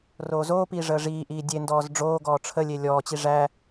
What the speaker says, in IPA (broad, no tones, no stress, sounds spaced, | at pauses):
r oː z oː p iː ʐ əː ʐ iː ʔ iː dʲ e n d ɔː z ɖ͡ʐ oː ɡ ɔː ʈ͡ʂʰ ə lʲ e lʲ ɔː t͡ɕ i ʐ æ